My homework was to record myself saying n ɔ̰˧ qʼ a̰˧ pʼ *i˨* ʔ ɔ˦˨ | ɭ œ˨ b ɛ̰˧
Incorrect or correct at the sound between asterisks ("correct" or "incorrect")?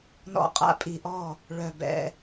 correct